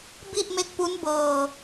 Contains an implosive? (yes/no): no